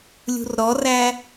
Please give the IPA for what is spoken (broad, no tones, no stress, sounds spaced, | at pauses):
lʲ ṳ r ɾ ɔ r æ